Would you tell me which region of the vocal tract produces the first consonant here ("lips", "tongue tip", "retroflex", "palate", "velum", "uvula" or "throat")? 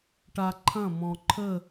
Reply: retroflex